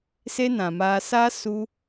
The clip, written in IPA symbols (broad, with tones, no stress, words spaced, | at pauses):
se˦nã˨maː˧ sa˦ su˦